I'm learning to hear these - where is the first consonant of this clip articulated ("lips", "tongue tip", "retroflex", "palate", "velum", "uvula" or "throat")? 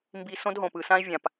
lips